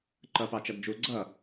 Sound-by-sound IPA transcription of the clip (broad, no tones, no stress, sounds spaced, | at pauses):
ǃ ʌ p ɑ t͡ʃ ʌ d d͡ʒ u ɡ͡ǀ ʌ